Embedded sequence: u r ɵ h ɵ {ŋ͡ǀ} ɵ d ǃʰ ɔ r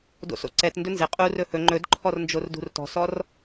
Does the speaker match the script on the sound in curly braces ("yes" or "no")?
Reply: no